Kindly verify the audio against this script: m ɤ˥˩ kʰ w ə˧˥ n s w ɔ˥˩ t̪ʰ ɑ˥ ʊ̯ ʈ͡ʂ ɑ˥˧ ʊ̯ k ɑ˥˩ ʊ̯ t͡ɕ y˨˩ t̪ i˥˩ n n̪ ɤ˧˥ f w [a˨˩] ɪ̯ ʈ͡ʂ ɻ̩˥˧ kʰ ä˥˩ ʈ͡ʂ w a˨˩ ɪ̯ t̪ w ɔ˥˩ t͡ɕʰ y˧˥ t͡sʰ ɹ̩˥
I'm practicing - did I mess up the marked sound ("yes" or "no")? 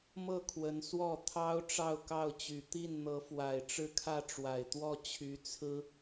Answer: no